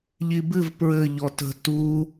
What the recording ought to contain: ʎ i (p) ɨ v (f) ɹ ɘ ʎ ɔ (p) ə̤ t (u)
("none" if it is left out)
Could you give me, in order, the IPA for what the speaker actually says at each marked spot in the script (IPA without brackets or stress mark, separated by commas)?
b, p, t, u